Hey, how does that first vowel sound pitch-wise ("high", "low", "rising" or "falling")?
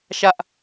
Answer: high